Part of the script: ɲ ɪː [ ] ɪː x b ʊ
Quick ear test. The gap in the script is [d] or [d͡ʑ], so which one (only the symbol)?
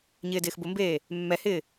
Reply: d